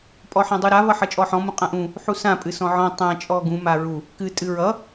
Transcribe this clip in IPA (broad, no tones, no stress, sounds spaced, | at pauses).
pʼ ɔ ħ ã dˤ u ɾ a v ʌ ħ ʌ t͡ʃʼ ɔ ħ ɔ̃ m ũ qʼ ã ʔ ũ | ħ u s ã pʼ ɨ s ɔ̃ ʕ ɔ̃ tˤ ã t͡ʃʼ ɔ ɡ ũ m a ɹ u | k ɨ tʼ ɨ ɹ ʌ